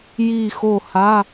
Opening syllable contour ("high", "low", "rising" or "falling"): falling